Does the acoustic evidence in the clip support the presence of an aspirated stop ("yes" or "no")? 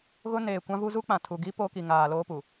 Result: yes